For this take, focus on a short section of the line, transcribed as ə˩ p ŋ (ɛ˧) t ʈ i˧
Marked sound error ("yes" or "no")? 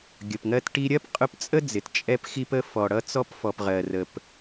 yes